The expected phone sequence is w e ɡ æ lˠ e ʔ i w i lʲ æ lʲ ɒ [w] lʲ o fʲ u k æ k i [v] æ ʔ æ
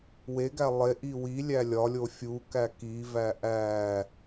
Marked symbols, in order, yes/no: no, yes

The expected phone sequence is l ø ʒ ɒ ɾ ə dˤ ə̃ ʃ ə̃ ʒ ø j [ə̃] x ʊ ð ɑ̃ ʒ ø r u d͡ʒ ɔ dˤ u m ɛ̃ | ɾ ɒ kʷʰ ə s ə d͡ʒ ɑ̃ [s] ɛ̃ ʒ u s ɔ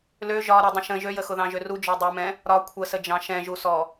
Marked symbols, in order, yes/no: no, no

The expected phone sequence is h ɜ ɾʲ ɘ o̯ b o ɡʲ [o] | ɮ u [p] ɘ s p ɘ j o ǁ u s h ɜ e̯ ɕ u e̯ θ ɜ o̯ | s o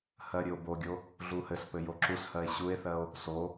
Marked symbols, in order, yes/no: yes, no

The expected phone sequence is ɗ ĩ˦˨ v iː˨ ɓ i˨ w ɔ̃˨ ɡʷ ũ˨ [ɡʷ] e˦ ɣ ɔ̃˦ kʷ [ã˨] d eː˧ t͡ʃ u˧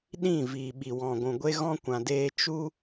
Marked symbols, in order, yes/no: yes, yes

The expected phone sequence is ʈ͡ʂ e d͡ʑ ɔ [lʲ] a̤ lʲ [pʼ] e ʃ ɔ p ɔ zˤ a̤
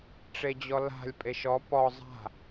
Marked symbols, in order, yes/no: no, yes

